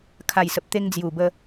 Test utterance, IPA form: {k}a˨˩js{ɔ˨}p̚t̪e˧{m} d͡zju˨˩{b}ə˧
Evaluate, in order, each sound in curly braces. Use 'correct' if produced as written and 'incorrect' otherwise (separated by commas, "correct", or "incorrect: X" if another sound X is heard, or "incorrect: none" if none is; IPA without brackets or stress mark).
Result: incorrect: kʰ, incorrect: ə˨, incorrect: ŋ, correct